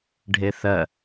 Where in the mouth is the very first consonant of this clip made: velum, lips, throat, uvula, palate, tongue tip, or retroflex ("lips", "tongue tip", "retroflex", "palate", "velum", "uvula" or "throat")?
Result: retroflex